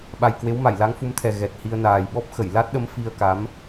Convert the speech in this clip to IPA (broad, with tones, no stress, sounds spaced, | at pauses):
ɓ a˨˩ j k w e˨˦ w m a˧˩ j l a˨˦ ŋ f u˨˦ m t̪ʰ ɛ˨˩ ɣ ɛ˨˩ t̚ h i˧ ə̯ n aː˨˩ j ɓ ɔ˦˥ p̚ x ə˧˩ j l a˦˥ t̚ ɗ ə˨˦ m f i˧ ə̯ k a˨˦ m